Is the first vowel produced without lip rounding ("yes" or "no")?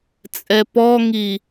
yes